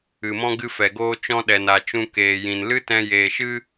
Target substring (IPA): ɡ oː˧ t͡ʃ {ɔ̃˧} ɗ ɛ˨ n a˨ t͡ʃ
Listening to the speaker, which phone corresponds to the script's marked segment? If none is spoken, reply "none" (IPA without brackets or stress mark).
ɔ̃˧